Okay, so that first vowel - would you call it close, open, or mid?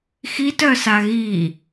close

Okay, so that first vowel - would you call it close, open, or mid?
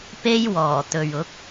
mid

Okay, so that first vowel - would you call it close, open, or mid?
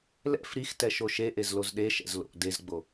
mid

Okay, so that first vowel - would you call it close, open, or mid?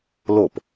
mid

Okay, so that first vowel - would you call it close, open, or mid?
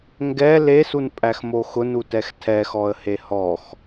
mid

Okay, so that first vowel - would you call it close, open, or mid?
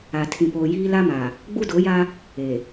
open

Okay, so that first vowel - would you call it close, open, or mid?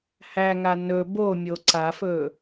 open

